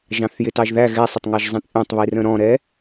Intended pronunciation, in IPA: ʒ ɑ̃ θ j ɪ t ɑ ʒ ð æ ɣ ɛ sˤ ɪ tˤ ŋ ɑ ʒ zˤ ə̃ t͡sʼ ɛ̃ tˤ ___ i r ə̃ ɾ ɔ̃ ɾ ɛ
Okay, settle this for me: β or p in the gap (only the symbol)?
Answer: β